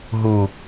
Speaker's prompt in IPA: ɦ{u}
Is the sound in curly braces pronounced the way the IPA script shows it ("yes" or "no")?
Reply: yes